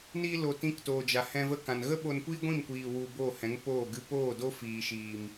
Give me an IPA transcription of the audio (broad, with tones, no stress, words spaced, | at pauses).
niː˧ lo˧ tĩ˧ktoː˨d͡ʒa˨ hɛ̃˧və˦kã˨n ɣə˦ɓo˧nkʷiː˦ ɡʷĩ˦˨mkʷiː˨ wu˧ boː˦˨hɛ̃˨˦ŋ poː˦˨ɡɨ˦ poː˦˨do˦ fiː˨ʃiː˨m